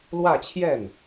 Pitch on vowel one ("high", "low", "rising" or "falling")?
falling